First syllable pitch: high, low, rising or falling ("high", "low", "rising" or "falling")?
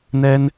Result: high